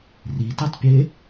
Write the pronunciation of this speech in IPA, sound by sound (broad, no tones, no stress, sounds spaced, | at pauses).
r i t ɛ tˤ pʲ e